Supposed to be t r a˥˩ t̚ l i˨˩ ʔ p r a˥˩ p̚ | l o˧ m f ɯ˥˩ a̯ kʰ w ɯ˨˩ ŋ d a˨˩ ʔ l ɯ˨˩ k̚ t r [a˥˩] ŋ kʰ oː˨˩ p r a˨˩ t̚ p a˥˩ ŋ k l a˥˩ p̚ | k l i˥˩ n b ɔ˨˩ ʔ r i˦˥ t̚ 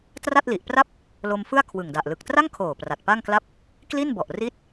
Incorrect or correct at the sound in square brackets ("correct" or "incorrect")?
correct